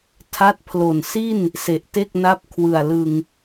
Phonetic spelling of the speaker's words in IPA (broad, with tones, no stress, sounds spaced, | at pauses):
tʰ a˦˥ t̚ pʰ l o˨˩ n s i˥˩ n | s e˨˩ ʔ t e˥˩ k̚ n a˦˥ p̚ kʰ w ɯ˨˩ a̯ l ɯ˧ ŋ